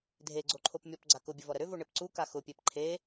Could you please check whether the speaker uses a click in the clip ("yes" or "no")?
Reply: yes